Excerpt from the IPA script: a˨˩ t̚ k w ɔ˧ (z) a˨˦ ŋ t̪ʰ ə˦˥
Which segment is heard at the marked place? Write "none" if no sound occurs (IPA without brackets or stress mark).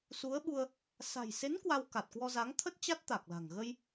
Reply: z